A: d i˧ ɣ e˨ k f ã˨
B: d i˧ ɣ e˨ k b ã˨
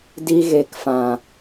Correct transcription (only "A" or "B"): A